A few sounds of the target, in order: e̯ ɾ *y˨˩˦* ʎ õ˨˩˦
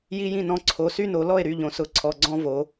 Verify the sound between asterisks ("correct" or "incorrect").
incorrect